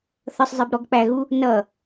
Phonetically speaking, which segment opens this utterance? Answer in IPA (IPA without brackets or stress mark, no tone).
θ